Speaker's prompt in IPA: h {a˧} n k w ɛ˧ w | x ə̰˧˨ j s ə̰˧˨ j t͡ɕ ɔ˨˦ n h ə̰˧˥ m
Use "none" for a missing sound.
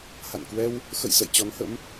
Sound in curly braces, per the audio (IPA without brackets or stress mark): a̰˧˨